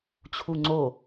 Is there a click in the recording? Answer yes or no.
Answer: yes